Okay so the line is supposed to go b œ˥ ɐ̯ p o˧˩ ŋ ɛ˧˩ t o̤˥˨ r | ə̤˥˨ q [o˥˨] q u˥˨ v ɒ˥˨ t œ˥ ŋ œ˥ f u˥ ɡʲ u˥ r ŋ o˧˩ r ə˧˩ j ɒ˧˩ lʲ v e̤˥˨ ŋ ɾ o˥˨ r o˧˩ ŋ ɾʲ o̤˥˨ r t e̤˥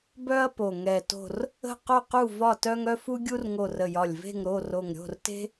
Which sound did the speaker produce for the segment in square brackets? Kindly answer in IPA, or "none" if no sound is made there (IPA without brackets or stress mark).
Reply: o˥˨